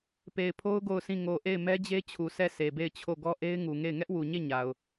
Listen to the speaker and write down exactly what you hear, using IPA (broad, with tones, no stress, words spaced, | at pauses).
pe˨ɪ̯pʰo˦ʊ̯ ɡo˦˨ʊ̯sʰĩ˦˨ ŋo˨ʔe˦˨ɪ̯ mɛ˦d͡ʑe˦t͡ɕʰu˨ sʰɛ˦˨ sʰe˨be˦˨ɪ̯t͡ɕʰo˦˨ ɡɔ˦ʔe˦ɪ̯ŋu˨ŋe˦˨ɪ̯ ŋɛ˦ʔwu˨ɲe˦˨ ɲa˨ʊ̯